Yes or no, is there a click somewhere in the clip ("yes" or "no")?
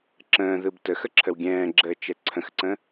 yes